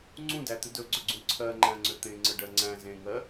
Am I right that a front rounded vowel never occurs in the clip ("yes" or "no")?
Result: no